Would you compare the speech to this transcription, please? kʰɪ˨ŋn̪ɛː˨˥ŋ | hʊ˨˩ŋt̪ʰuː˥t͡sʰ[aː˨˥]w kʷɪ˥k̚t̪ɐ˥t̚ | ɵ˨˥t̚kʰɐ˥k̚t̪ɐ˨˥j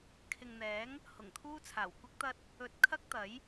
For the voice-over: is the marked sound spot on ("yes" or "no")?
no